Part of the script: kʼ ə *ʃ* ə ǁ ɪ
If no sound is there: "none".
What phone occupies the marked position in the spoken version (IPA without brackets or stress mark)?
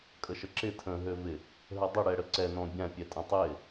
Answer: ʃ